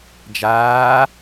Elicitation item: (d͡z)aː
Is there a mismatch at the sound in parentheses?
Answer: yes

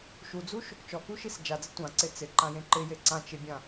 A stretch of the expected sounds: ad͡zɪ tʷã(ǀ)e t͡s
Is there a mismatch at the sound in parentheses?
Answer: no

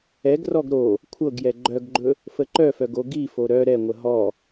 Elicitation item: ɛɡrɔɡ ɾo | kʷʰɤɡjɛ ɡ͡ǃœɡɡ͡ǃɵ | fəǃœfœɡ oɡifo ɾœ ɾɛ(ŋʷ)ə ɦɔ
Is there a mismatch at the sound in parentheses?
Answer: no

